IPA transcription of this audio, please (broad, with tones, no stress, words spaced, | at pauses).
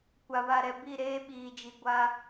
kʷa˨βa˨ɾɛ˨ bi˦˨ɾeː˦ɓiː˨d͡ʒi˨ ɡʷa˦